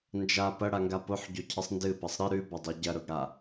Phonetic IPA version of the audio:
n d͡ʒ a p ɐ ɽ a ŋ ɡ a p o ħ ɟ o cʰ ɨ sˤ n d ɨ p ɐ sˤ ɾ ɨ ɾ ʉ b ɐ dˤ ɵ ɟ ɐ ɾ ɵ ɡ ɽ a

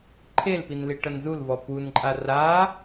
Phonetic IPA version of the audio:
ǃʰ e l p i n l i ʈ ɐ n z u l v ɔ p u n ǃʼ a r a

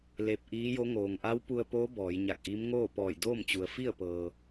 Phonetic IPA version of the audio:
l e˧ p̚ ʔ iː˧˥ j o˧˥ ŋ oː˩ ŋ ʔ a˧˥ w p u˧ ə̯ p oː˧˥ b ɔː˩˧ j ɲ a˧˩ k̚ ʔ i˧˥ m ŋ oː˥˨ p ɔː˧˩ j d oː˥˨ m t͡ɕ u˩ ə̯ f i˥˨ ə̯ p ɤː˩

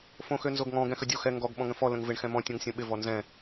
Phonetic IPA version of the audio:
f õ x ø n z o ɡ ŋ ɔ̃ ɡ ɛ̃ x ə dʲ o x ɛ ŋ ɡ ɔ ɡ ɓ ɔ̃ ŋ ə̃ f ɔ l ə̃ ŋ v ɪ ɳ x ɛ̃ m ɔ̃ tʲ ɔ̃ ŋ sʲ õ ɓ ɪ v ɔ n z ɛ̃

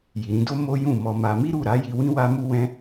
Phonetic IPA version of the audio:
j i˨ ɾ ĩ˧ d o˦ m o˦ j ũ˦˨ m ɔ˧ m a˧ m i˦ ɾ u˦˨ ɾ a˨˦ j i˧ w ĩ˦ w a˦ m u˦ w ɛ̃˦

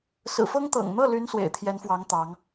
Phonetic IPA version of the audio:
s ɹ̩˨˩ f ɤ˥ ŋ t̪ ɤ̰˨˩ ŋ n̪ ɤ˥˩ l y˧˥ n s w ḛ˨˩ ɪ̯ t̪ʰ j ɛ˧˥ n f w ɑ˧˥ ŋ t̪ ɑ˧˥ ŋ

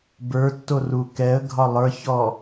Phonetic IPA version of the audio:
b ə˞ tː o r u k ɛ ə̯ ɡʱ ɒ lˠ ə˞ ç ɔ

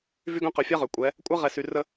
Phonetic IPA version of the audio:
v y˦ ɡ œ̃˦ q ø˨ fʲ a˦ ʁ ø˨ kʷʼ ɛ˨˦ | kʷʼ a˦ ʁ ɛ˨ s y˨ r ə˦

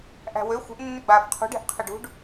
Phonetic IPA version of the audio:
ʔ æ̤ w ø xʷ ə̤ ʔ nː ʏ ɡ͡b aː f qʰ ṳ ɖ ɛ̤ ʔ qʰ ə ɖ ṳ ɖ

